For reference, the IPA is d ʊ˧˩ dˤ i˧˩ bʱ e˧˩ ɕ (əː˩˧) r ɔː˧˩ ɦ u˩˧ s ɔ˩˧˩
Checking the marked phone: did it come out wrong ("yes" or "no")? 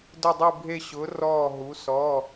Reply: yes